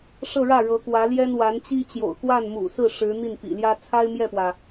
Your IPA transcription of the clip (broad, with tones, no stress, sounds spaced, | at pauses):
ʂ ɤ˥˧ ɻ ä˥˩ ɻ ɤ˧˥ k w ä˧˥ l j ɛ˥ n w a˧˥ n t͡ɕ i˥ t͡ɕ j o̰˨˩ ʊ̯ k w a˥˩ n m ṵ˨˩ s ɹ̩˥˩ ʂ ɻ̩˧˥ n̪ i˥˩ n p ḭ˨˩ l j ä˥ t͡sʰ a˥ ɪ̯ m j ɛ˥˩ p w ä˩